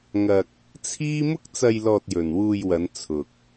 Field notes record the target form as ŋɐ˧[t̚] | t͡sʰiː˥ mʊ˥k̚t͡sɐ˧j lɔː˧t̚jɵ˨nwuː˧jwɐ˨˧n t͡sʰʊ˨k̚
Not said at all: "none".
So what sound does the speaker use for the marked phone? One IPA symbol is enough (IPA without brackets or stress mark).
k̚